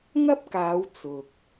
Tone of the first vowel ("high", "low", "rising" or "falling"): high